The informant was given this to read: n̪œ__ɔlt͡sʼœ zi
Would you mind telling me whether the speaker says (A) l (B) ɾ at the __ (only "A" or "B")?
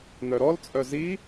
B